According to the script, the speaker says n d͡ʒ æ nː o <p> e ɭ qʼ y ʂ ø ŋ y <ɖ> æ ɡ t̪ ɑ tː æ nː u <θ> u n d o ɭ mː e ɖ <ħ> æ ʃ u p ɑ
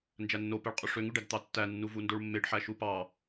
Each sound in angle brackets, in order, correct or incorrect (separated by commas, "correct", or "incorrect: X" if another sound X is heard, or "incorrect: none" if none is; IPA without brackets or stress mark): correct, correct, incorrect: v, correct